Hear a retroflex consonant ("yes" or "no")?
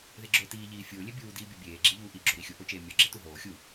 no